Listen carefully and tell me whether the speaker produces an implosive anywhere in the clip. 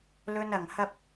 no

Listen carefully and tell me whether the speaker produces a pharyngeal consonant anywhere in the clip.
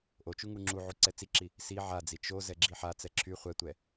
yes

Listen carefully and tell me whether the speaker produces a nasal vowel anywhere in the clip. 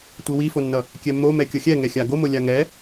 no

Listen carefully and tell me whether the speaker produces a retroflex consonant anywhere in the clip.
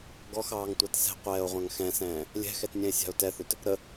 no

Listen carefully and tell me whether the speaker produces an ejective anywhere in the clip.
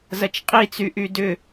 yes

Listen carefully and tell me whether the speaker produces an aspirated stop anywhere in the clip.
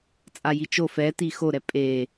no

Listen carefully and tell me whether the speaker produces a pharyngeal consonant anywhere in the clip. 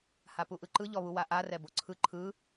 no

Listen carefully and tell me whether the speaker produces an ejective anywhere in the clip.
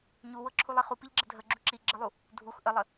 no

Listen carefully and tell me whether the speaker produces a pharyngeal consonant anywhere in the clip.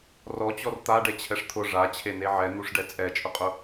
yes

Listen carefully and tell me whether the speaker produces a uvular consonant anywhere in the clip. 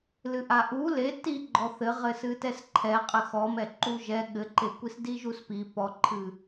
yes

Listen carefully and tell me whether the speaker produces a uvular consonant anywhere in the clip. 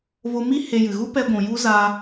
no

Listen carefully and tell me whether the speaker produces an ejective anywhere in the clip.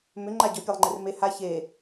no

